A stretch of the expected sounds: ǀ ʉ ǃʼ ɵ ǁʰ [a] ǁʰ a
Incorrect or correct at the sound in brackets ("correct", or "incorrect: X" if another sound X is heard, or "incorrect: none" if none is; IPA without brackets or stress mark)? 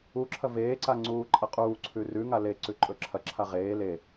incorrect: ɐ